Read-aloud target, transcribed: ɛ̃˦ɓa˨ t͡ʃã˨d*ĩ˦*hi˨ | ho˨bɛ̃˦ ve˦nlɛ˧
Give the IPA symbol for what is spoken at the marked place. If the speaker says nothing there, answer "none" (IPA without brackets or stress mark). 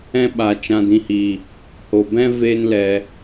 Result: ĩ˨